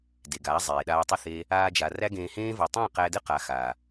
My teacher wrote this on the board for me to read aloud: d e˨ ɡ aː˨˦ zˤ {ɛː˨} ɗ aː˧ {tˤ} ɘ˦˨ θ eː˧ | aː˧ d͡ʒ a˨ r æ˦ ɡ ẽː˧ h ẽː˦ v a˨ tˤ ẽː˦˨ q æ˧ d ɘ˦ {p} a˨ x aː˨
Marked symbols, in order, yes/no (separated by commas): no, yes, no